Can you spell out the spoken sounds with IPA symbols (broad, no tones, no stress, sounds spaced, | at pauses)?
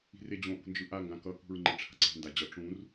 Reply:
i̤ r e d͡ʑ õ ʔ ṳ n d͡ʒ ɯ ʔ a ŋ ɡ ã k ʌ k ṳ ɹ ŋ͡ǃ e ʈ͡ʂʰ a̤ ǀ ɛ̤ n d a d͡ʑ ʌ ʈ͡ʂ ũ r